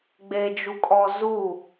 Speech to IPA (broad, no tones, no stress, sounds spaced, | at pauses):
ɡ͡b e d͡ʒ u kʼ ɔ z u